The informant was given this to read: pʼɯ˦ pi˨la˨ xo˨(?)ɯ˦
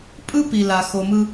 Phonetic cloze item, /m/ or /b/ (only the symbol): m